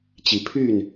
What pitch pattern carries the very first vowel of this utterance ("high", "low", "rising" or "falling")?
rising